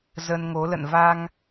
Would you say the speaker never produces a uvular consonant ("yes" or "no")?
yes